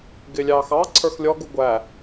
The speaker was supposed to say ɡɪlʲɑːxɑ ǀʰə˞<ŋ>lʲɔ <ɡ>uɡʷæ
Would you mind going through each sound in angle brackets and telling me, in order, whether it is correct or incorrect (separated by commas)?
incorrect, correct